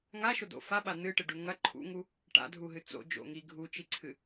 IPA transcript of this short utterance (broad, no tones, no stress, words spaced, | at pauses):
ŋaʃodo̰ faɓa nɨʈɨɖʉ ŋɐ ǃʰṵŋu | ʈa̰dʱuɦɨ t͡so̰d͡ʒo̰ŋi ɡʱut͡ʃiǀʰɨ